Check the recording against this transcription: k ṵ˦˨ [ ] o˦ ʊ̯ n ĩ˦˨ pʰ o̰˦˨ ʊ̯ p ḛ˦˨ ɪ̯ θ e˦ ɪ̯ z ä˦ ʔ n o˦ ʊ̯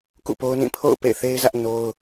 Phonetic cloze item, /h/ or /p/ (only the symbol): p